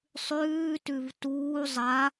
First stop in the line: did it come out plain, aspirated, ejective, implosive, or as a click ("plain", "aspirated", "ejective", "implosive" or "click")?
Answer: plain